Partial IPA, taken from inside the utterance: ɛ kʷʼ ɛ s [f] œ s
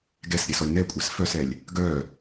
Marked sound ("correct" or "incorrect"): correct